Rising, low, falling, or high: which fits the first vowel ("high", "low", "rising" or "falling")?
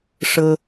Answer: high